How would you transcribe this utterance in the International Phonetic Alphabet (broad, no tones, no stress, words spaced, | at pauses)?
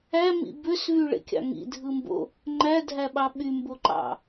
æmḭ bøsvyɭḛkʲɑ̰ ŋḭdʱɯmbo̰ | ŋ͡ǃædʱæɓɑ ɓymboǃɑ̰